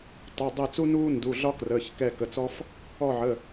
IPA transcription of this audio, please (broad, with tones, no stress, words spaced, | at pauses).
tˤa˩˧˩ dˤɛ˦˨t͡su˥ nuː˥ ndu˩˧˩ɮɒ˥krəː˩˧˩ç kɛ˦˨kə˩˧˩t͡sɔ˥f | ɔ˦˨ʕə˩˧˩